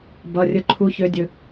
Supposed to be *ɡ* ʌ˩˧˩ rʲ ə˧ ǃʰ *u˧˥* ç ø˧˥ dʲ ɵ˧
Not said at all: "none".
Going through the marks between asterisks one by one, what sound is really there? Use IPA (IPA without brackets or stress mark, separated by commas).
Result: b, u˧˥